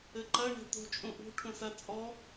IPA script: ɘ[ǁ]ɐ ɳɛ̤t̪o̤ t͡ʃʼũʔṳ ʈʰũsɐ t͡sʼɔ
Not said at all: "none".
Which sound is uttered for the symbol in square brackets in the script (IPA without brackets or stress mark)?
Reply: ǃ